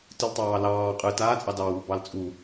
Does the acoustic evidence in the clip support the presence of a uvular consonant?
yes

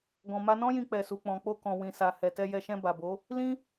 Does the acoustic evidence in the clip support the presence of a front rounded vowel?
no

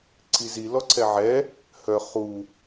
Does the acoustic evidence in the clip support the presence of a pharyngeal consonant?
yes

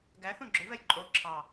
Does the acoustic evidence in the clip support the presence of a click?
yes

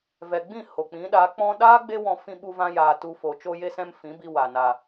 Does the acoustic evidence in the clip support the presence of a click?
no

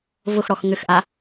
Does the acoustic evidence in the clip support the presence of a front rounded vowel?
yes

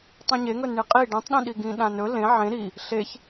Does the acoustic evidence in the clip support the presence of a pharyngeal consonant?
yes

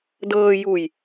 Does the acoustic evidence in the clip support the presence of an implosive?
no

